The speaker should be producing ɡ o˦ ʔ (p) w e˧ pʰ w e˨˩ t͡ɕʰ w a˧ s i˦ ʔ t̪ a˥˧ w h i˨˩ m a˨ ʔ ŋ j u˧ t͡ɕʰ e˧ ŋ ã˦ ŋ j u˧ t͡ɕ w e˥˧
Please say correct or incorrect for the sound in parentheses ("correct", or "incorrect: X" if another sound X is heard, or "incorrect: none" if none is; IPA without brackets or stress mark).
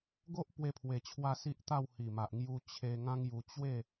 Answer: correct